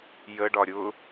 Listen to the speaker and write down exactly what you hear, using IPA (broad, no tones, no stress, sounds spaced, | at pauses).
j ə ɖ ɒ ɾʲ ʊ